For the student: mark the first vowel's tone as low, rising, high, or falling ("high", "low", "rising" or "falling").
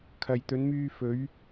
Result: low